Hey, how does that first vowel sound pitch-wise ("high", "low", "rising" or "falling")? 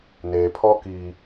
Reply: low